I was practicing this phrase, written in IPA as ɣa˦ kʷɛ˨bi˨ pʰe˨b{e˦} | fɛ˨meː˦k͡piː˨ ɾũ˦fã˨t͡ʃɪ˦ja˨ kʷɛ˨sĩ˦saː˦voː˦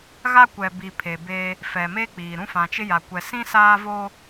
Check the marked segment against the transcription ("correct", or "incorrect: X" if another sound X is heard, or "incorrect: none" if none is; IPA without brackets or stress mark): incorrect: eː˦